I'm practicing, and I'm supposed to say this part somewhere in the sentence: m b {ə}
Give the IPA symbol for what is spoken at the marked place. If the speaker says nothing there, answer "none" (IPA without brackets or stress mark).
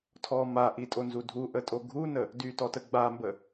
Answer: ə